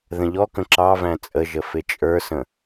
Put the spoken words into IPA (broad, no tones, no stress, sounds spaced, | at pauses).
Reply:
ð ə̃ ʎ ɔ k ə̃ ǁ ɑ v æ̃ t͡sʼ ə ʒ ə f ɪ t͡ʃʼ ə˞ s ə̃